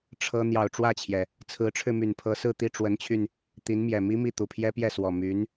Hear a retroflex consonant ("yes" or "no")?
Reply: yes